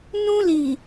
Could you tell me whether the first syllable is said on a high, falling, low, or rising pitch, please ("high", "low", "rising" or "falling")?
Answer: high